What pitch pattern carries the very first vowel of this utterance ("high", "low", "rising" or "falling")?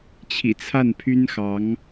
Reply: low